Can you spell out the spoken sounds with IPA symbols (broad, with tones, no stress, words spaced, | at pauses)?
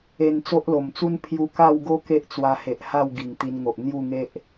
e˧n t͡so˦ʔlo˨˩mt͡su˦n pʰju˧ka˥˧wɡo˦ ke˦ʔt͡swa˧he˨ʔ ha˥˧w ɡi˨˩ŋ t̪i˧nŋo˨ʔ n̪ju˥˧ŋe˦ʔ